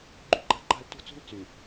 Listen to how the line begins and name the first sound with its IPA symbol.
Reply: ɡ͡ǃ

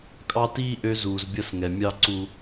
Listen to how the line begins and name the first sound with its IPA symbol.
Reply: kʼ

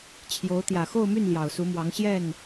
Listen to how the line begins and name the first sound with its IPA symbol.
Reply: t͡ɕʰ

